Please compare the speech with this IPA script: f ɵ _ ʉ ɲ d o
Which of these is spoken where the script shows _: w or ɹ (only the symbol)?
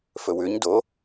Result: w